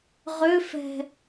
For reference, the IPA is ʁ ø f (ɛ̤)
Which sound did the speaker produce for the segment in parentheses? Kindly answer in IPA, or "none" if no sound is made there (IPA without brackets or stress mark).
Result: ɛ̤